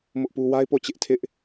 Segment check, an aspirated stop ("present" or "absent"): present